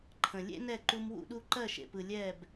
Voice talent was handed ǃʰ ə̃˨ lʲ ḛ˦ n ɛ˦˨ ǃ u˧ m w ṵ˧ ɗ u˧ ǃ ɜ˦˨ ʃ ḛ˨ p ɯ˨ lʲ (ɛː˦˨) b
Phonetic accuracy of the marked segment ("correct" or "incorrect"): correct